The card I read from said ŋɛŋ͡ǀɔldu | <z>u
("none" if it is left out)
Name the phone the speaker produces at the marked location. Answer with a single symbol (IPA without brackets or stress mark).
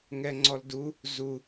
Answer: z